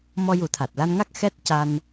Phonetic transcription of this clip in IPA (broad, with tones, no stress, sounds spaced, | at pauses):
m ɔ˧ j u˨˩˦ t̪ʰ a˨˩ t̚ l a˧ n ŋ a˦˥ k̚ x ɛ˦˥ t̚ c a˧ n